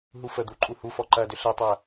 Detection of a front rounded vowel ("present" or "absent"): present